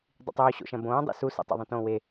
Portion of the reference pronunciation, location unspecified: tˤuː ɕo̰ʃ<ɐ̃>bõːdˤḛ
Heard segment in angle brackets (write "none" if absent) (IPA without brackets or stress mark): ɐ̃